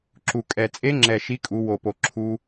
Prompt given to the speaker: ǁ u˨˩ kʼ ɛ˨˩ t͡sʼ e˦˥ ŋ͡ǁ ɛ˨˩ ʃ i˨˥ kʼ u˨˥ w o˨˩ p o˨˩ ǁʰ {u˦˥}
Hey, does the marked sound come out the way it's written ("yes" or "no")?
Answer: yes